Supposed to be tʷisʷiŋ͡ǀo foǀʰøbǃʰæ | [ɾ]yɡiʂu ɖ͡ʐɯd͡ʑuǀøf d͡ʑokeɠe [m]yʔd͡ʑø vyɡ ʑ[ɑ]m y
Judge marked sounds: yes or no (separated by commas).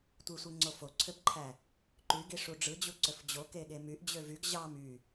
no, yes, yes